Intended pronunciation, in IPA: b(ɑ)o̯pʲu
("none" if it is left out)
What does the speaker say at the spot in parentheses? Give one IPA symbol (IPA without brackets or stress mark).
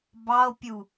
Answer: ɑ